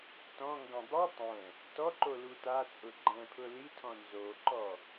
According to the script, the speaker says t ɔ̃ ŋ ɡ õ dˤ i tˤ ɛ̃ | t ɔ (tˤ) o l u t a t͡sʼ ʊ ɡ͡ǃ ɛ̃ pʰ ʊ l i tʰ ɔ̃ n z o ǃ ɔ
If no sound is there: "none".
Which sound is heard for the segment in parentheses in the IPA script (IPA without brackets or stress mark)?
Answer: ǃ